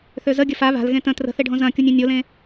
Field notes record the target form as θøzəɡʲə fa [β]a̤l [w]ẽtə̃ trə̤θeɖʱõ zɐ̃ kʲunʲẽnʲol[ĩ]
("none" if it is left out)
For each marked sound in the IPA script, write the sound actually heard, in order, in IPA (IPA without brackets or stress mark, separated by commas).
β, ɣ, ẽ